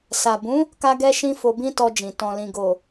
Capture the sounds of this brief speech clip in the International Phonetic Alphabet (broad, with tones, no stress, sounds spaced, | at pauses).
s a˨ b ũ˨˦ | k a˧ ɡ ɛ˧ ʃ ĩ˧ f o˧ b ĩ˦ t ɔ˧ d͡ʒ ĩ˨ t ɔ̃˨ l ĩ˨ ɡ o˨